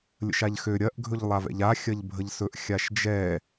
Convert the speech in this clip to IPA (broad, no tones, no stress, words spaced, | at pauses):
lʲə̰ʃaʎxø ɾʲɐʔ ɡʱɵʎlˠavɛ̰ʎa xʲɐʎbʱəʎsɵʔ xʲaʃd͡ʒɛ